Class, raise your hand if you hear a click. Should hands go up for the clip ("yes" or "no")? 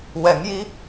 no